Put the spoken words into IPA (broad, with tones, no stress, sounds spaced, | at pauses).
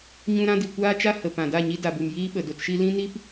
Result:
ɲ ũ˧ ɾ ã˧ d i˨ kʷ aː˦ t͡ʃ a˦ h ə˨ p ã˨ d a˦˨ ɲ i˧ d a˨ b u˨ m j iː˧ ɓ ə˨ d o˧ t ʃ i˦ l ĩ˦ n i˦ p